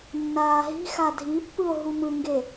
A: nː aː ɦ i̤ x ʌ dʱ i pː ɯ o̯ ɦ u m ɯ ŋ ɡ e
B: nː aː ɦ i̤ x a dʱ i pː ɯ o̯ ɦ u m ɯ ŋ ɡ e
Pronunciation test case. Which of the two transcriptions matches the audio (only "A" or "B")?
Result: B